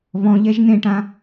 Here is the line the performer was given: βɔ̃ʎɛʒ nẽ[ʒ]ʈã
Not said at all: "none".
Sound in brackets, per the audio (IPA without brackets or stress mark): none